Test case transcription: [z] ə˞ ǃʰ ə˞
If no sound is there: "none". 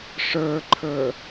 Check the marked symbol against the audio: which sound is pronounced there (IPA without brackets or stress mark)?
ʂ